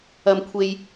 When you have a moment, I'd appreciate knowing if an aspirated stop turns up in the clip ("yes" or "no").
yes